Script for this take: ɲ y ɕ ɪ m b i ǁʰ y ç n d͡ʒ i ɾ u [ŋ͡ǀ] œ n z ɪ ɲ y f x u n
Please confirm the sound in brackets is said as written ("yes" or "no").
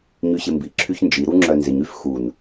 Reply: no